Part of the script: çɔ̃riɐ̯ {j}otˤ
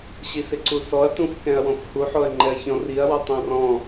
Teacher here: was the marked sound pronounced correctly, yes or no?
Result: no